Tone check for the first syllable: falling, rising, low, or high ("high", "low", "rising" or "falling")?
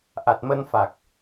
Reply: low